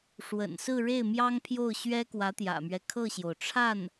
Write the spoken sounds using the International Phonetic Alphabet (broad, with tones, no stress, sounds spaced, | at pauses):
ʂ w ə̰˨˩ n s ɹ̩˥˧ ɻ e˥˩ ɪ̯ m j ɑ˥ ŋ pʰ j o˥˩ ʊ̯ ɕ ɥ ɛ˥ k w ä˧˥ t̪ j ä̰˨˩ m ɥ ɛ˦ kʰ ɤ˥˩ ɕ j o˩ ʊ̯ ʈ͡ʂʰ a˥˩ n